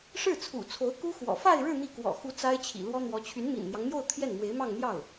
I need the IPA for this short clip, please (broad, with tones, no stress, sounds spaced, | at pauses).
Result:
ʂ ɻ̩˥˩ t͡sʰ ṵ˨˩ t͡sʰ o˧˥ ʊ̯ k u˥ x w ɔ̰˨˩ f a˥˧ ɪ̯ ɻ ɻ̩˥˧ n̪ i˥˩ k w ɔ̰˨˩ x u˧˥ t͡s a˥ ɪ̯ t͡ɕʰ ḭ˨˩ l w ɔ˥ n̪ w ɔ˧˥ t͡ɕʰ y˧˥ n m ḭ˨˩ n n̪ j ɑ˦ ŋ n̪ j o˥˧ ʊ̯ t̪ʰ j ɛ˥˩ n m w e˧˥ ɪ̯ m ɑ˥˧ ŋ n̪ j ɑ˥˩ ʊ̯